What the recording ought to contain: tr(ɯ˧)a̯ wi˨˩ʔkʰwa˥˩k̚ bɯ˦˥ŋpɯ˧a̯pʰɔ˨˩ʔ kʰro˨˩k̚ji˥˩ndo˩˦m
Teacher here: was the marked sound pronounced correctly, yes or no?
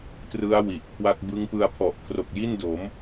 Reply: no